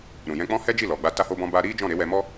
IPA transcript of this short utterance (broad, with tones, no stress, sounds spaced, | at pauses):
ɾ ũ˨ j ɛ̃˧ k͡p ɔ̃˦ h ɛ˦ d͡ʒ i˦˨ l ɔ˨ ɡ͡b a˧ t a˦ h o˦ b ɔ̃˦ b a˧ ɾ i˦ d͡ʒ ɔ̃˦˨ ɾ e˨˦ w ɛ˧ m ɔ˦